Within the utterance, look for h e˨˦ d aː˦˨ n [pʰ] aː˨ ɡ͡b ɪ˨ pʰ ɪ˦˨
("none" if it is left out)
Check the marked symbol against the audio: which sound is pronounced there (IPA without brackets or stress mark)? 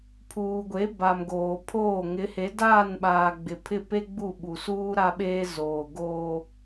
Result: ɓ